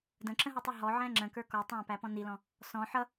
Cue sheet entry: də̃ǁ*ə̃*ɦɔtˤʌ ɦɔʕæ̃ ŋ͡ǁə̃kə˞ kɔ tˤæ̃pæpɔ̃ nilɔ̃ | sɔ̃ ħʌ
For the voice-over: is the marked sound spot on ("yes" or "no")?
yes